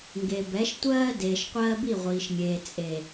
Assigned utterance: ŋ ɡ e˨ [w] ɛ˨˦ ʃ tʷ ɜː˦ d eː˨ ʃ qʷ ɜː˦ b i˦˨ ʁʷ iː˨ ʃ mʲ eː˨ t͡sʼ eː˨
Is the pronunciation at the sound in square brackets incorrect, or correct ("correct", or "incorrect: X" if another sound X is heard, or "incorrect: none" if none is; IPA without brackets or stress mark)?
incorrect: b